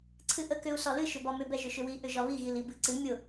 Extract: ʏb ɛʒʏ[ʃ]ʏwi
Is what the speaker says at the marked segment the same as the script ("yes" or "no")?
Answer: yes